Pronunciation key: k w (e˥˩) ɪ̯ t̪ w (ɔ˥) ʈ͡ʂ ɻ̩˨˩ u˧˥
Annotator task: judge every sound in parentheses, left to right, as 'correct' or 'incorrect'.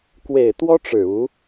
incorrect, correct

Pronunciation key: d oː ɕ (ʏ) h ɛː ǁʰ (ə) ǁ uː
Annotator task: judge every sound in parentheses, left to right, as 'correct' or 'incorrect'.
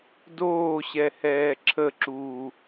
incorrect, correct

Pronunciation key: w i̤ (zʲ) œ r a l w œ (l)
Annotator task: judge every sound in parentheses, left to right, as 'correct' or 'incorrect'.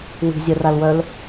correct, correct

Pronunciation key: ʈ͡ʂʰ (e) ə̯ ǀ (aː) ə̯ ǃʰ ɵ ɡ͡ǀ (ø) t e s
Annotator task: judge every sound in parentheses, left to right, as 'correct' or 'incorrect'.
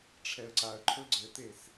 incorrect, incorrect, incorrect

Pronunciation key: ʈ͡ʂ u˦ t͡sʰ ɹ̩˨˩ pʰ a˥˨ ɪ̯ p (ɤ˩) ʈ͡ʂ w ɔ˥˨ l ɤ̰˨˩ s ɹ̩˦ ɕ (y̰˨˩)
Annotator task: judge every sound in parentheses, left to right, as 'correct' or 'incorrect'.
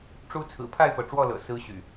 correct, correct

